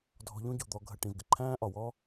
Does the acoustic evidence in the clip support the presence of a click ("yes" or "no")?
yes